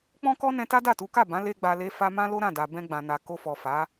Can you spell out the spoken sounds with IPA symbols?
k͡pɔ̃˦kɔ˦nɛ̃˧ ta˦da˦˨tu˨˦ka˦˨ bã˨˦le˧ ɡ͡ba˧le˦fa˦ mã˦lo˦ɾã˦˨da˨ bɛ̃˧ɡ͡bã˨na˨ ko˧fɔ˨fa˨˦

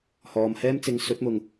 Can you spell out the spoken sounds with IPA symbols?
hɔː˨˧mhɛː˥m t͡sɪ˨˧ŋsɵ˨˥t̚mʊ˨ŋ

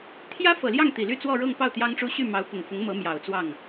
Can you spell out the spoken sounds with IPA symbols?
t̪ʰjä˥fɤ˨˩ljɑ˥˩ŋ t̪i˨˩ly˥˧ t͡swɔ˥˧ɻɤ˥˧ŋpɑ˥˩ʊ̯ t̪jɑ˥ŋʈ͡ʂu˥ ɕy˥˩mɑ˧˥ʊ̯pʊ˨˩ŋfʊ˧˥ŋ mɤ˧˥ mjɑ˨˩ʊ̯t͡swɑ˥˩ŋ

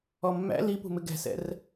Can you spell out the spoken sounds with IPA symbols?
ɔmːæ̰ lipṳmɪ ɡɛ̤sɛ̰r

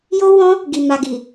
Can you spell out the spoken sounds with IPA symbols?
jo˧ wɔ̃˦ | ɡi˨ ma˨ɡi˨

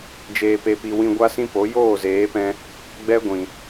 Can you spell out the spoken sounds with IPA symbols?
d͡ʒeː˨pe˨pi˨ wĩ˧ɡʷa˦sĩ˦po˨˦ joː˦˨zeː˨˦pɛ̃˧ | ɡ͡bɛ˦ɡʷĩ˨

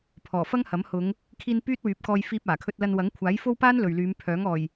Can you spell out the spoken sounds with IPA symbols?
pʰɔː˨˩fɐ˥ŋhɐ˨˥m hʊ˨˧ŋ | kʰiː˧n pyː˥t̚wyː˨˥p̚kɔː˧j fiː˧p̚aː˨˩kʰɵ˧t̚lɐ˧n wɐ˨˥ŋkʷʰaː˨˥jfo˥wpaː˥n lɵ˨ɥlyː˨˧m pʰœː˨˥ŋɔː˨˩j

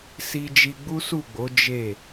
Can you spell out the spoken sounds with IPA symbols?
si˧d͡ʒi˧ ɡ͡bu˦su˦˨ɡ͡bo˨˦ d͡ʒe˦˨

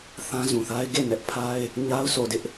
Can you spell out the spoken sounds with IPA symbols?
θã˦zũ˨θa˦ɪ̯ ɡe˦˨nɛ˦ʔpʰa˦ɪ̯ | ɲa˦ʊ̯so˨dɪ˦ʔ

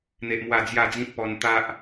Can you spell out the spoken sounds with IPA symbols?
n̪e˦ʔmwa˥˧ d͡zja˥˧d͡zĩ˦t̚pɔ˧n t̪a˦ʔ

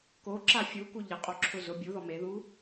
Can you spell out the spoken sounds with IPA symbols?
koǁa fʲuku ʎɪqʼoǁʰʊ zʊ bʲuðɔ meðu

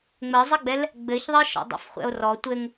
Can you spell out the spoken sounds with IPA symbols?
ŋ͡məzˤɘɡ͡bɛl | ɡ͡bɘçðˤɘ ʃɔ̰dˤɛ̰fχʷɛ̰o̯rɔ tʷɘŋ

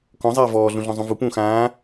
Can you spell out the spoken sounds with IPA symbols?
kɔ̃ zˤeːvɔː ɮũɮɔ̃zˤũvu pũːxãː

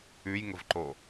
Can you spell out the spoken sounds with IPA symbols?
ʉjŋəvǃo

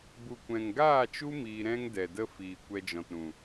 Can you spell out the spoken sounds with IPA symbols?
bu˨kʷɛ̃˨ŋɡaː˦˨t͡ʃu˦ miː˧ɾɛ̃˦ŋdɛ˨də˦ fiː˨ kʷɛ˧d͡ʒɔ̃˨tɾũ˨

